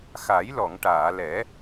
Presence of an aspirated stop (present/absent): absent